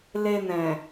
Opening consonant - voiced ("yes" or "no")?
yes